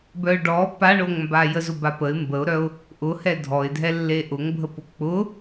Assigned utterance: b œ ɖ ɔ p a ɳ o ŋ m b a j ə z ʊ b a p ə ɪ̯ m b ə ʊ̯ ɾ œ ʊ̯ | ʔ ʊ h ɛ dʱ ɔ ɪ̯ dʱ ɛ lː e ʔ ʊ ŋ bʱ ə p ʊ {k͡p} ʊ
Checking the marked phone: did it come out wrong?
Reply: no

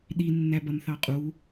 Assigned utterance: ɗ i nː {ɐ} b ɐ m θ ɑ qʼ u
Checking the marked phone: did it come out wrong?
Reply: yes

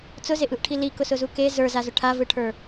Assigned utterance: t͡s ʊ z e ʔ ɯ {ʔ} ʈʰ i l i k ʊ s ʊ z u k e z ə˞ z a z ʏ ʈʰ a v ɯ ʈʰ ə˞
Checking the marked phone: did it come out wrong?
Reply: no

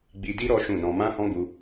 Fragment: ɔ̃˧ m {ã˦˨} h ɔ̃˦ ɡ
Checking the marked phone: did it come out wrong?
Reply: yes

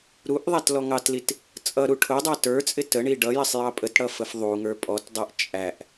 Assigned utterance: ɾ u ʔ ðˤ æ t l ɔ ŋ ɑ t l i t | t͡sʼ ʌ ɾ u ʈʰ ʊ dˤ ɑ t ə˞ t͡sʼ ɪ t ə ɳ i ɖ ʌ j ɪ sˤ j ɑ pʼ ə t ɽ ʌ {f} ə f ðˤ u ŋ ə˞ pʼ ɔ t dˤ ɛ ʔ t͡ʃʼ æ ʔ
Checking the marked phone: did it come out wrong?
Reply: no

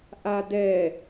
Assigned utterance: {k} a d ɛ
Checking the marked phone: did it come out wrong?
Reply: yes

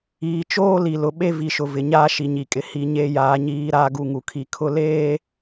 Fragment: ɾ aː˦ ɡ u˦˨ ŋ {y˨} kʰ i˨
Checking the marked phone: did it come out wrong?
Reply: yes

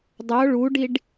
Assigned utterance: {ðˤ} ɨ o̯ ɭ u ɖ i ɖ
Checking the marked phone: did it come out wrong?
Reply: yes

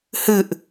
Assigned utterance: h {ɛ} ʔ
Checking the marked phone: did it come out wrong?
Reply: yes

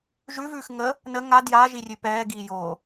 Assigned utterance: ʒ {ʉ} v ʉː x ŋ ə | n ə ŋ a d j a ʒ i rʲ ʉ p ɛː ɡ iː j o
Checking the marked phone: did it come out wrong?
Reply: no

